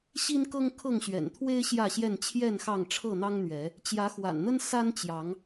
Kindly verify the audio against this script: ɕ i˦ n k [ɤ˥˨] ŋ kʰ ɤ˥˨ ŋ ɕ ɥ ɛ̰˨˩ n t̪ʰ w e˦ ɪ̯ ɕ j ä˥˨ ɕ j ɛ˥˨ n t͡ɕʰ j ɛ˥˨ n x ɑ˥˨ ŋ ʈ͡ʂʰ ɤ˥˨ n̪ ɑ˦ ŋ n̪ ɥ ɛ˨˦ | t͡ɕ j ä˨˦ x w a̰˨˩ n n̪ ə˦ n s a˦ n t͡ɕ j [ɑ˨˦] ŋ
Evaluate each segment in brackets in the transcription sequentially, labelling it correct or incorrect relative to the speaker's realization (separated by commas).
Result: incorrect, correct